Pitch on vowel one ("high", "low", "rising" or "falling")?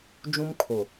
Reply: high